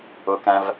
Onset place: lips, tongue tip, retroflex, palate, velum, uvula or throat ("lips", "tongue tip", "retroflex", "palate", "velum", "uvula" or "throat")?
velum